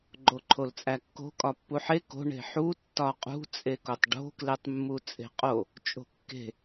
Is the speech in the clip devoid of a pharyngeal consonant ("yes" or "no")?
no